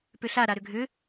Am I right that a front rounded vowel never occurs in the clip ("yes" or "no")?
no